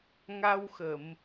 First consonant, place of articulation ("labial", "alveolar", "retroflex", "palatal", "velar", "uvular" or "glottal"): velar